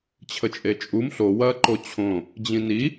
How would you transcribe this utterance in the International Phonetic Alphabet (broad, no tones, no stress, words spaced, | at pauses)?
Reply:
t͡ɕʰət͡ʃʼet͡ʃʼum ɬo wɐːǃot͡ɕʰõ | d͡ʑĩni